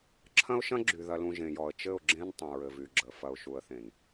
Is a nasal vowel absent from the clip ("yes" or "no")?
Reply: no